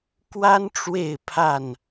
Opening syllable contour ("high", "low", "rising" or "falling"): high